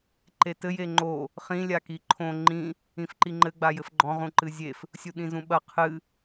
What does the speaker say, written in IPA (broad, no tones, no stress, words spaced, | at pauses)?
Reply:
ǃetɘ jeŋ͡ǃo | χĩ lʲakiǃʰõ ŋ͡ǃĩ | ĩfǃiŋ͡ǃɘ ɡ͡bajɘfɡ͡ǃɔ̃ ʁũǃɨzʲef | sʲuɗĩzũɓɐ qʰɨ